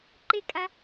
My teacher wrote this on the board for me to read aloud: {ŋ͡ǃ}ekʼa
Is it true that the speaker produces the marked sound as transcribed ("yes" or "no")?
no